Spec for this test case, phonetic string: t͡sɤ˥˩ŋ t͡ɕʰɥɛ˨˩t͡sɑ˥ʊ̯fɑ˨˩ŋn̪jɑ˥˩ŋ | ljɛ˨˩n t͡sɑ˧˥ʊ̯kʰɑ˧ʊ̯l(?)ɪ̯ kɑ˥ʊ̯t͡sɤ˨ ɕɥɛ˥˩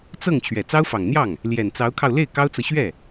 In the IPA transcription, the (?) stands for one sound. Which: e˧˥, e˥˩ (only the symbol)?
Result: e˥˩